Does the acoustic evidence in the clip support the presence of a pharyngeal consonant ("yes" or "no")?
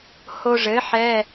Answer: yes